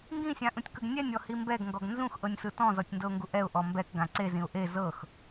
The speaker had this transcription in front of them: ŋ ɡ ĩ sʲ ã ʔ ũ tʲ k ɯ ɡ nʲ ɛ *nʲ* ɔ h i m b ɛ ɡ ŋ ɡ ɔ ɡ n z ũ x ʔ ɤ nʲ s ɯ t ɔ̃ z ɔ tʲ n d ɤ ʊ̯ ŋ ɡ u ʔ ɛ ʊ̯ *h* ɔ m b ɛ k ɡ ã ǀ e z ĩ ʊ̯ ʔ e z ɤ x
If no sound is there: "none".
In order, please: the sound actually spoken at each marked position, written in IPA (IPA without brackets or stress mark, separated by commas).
nʲ, ʔ